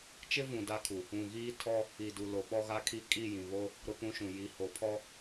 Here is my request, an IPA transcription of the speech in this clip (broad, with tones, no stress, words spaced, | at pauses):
t͡ʃɪ˦vũ˨ da˦kʰu˨ | ũ˨ɣiː˦ tʰɔ˦ | i˨du˨ lo˨ɓɔ˦ɣa˦kʰi˦ kʼi˦˨jĩ˨βo˦ | ɾʊ˦pũ˦ʃũ˨ ji˨ho˨ pʰɔ˦